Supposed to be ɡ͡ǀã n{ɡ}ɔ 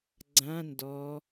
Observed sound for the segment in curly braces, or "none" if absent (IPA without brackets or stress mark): d